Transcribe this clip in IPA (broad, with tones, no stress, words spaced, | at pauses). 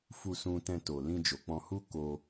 fu˧sũ˧tɛ̃˧to˨ lĩ˧d͡ʒo˨k͡pɔ̃˧ hu˦ ko˧